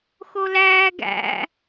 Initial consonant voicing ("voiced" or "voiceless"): voiceless